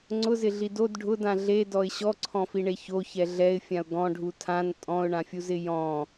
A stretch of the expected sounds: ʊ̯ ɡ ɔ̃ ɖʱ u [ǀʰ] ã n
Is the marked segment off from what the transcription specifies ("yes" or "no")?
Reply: yes